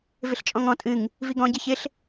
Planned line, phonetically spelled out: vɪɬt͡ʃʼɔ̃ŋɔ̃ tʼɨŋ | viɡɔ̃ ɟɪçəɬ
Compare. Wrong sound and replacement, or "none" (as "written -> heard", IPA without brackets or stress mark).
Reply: ə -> ɪ